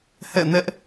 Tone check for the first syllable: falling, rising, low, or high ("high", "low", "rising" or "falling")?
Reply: falling